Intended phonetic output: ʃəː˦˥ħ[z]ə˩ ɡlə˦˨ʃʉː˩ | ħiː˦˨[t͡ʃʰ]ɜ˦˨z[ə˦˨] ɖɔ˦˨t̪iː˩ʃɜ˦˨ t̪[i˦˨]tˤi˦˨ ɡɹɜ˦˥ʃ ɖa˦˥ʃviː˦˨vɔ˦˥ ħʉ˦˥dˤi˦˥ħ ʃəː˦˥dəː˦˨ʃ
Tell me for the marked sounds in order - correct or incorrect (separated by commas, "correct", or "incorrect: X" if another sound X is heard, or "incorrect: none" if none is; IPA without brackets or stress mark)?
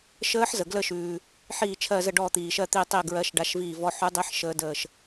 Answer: correct, correct, correct, correct